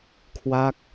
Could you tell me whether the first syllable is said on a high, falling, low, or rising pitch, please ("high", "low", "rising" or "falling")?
falling